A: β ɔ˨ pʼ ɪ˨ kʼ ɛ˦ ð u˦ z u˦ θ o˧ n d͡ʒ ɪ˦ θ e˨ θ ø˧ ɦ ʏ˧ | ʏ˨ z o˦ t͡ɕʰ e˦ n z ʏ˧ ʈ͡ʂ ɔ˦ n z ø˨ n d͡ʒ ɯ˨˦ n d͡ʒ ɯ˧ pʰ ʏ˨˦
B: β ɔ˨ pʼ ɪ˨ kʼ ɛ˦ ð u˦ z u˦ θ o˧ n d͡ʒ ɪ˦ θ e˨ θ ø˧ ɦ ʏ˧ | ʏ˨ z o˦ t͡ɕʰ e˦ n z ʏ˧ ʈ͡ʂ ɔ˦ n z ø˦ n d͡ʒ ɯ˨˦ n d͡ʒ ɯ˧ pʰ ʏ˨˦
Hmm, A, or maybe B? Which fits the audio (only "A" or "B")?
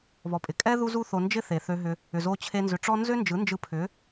B